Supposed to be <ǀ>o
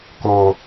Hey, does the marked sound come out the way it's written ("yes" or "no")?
no